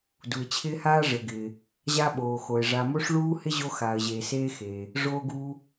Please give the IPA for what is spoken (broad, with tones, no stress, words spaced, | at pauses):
du˩ɪ̯t͡ɕʰɪː˧haː˧ ʐɘ˩ɡɪː˩ | ʑa˧ɓoː˩xo˩ɪ̯ ʐa˩mo˧ʂ ɭuː˧ hɪ˧ ʑo˧xaː˩ə̯ʑeː˩ seː˧xeː˩ | ʐoː˧ɡuː˧